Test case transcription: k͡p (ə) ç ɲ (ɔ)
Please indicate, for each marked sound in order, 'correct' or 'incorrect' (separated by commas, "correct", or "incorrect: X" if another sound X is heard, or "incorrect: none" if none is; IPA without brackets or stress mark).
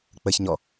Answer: correct, correct